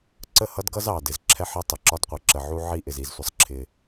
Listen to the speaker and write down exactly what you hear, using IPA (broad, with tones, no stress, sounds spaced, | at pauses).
ǀ ə˦˨ h ʌ˦ d ɡ ʌ˦ z ɑ˨ d ɪ˨ z ǁʰ ɛ˦ ħ ɪ˦ tˤ ɪ˨ ǁ ɒ˦ d qʷ i˨ ǁ ə˨ ʕ u˦ ʕ i˦ ʔ ɪ˨ z i˨ z sʷ ə˦ sˤ ǁʰ ɪ˦